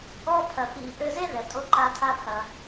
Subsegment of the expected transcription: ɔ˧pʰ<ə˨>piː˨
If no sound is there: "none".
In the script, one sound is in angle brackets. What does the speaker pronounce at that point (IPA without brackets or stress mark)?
ɐ˨